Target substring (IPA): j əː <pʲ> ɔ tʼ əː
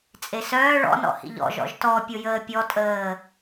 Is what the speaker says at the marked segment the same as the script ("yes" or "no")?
yes